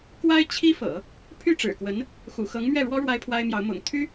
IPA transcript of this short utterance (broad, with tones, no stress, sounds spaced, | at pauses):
k w a˥ ɪ̯ t͡ɕʰ i˥ f ɤ̰˨˩˦ | pʰ y˥˩ ʈ͡ʂ ɻ̩˨˩ k w ə˧˥ n | x ṵ˨˩ x ɤ˧˥ ŋ m ɥ ɛ˥˩ ɻ w ɔ˥ ɻ w a˥ ɪ̯ pʰ w a˥ ɪ̯ m j ɑ˧˥ ʊ̯ m ʊ̰˨˩ ŋ t̪ʰ y˥